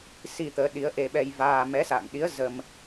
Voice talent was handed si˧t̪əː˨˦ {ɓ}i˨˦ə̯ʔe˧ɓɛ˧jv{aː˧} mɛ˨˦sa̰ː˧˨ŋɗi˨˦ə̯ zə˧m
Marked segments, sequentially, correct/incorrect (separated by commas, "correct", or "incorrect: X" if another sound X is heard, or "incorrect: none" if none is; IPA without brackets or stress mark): incorrect: ɗ, correct